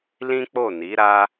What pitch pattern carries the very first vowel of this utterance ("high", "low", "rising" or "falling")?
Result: high